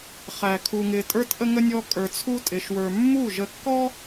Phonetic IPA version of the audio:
χ æ˧ kʰ u˧ ŋ ɪ˧ tʼ ə˞˦ t ʔ ə˦ ŋ ə˦ nʲ ɔ˦ kʼ ə˞˧ t͡sʰ u˦ tʼ ɪ˧ ʃ w ə˞˧ mː u˦˨ ʒ ə˧ kː ɔ˦

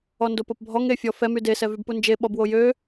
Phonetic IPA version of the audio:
ɔ n d o p o p bʱ ɔ ŋ e fʲ ɔ f ɛ m y d e s ɛ v y b p u n d͡ʒ e ɓ ɔ b w o j ø

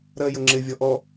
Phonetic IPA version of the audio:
ɾ ɜ j ə ŋ͡ǁ ɪ vʲ ɔ ʔ ɔ

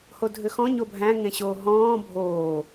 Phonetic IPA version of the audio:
h o dʱ ʏ x ɔ̃ ɲ o bʱ æ̃ ŋ ẽ ɕ oː ɦ ɔ̃ː bʱ oː

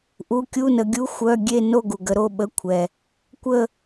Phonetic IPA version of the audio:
ʔ u˧˥˧ kʲ u˧˥˧ n ə˨˦ ɡʲ u˧˥˧ xʷ œ˧˥˧ ɡʲ e˥˧ n o˥˧ ɡ u˨ ɡ ə˨˦ ɾ o˧˥˧ ɓ ə˧˥˧ kʷʰ ɛ˨ | kʷ ə˥˧

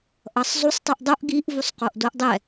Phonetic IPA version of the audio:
ʔ ʌ sˤ zˤ u sˤ tˤ u ʔ dˤ o ʔ ɡ i ʔ v u sˤ q o ʔ d o ʔ dˤ ɛ

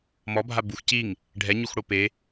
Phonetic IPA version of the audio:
m ɔ bʱ a b u x c i ŋ | ɖʱ ɛ ɲ u x ɽ o p e

